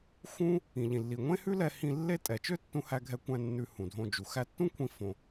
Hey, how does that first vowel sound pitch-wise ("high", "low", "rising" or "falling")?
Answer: high